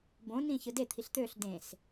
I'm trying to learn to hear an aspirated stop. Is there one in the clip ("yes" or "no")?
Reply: yes